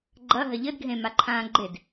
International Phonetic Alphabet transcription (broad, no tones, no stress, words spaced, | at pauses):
ɡ͡ǃɐɦɐ ʎɘdɡʱẽ maǃʰãːɡ͡ǃed